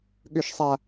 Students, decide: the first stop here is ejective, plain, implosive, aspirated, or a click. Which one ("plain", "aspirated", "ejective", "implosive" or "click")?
implosive